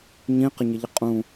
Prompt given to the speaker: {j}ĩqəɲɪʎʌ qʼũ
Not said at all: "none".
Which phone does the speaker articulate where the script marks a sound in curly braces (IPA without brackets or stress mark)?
ɲ